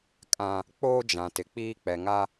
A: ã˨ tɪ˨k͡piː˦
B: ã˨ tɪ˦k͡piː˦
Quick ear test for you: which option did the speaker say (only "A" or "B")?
A